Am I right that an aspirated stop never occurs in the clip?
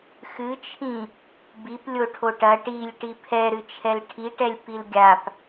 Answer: no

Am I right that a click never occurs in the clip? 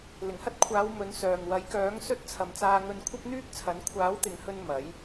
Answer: yes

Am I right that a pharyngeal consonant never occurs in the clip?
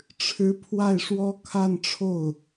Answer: yes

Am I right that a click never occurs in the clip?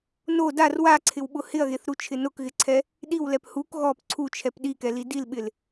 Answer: no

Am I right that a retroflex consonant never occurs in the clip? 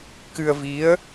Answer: yes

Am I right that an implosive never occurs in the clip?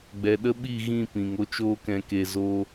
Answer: no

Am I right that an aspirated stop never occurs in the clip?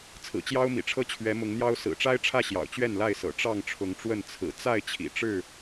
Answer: no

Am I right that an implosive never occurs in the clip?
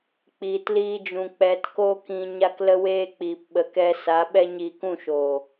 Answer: no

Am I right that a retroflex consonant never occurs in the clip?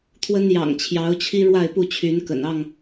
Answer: no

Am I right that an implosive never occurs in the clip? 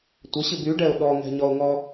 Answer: no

